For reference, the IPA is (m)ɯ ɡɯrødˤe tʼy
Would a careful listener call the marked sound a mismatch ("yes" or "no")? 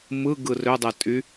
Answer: no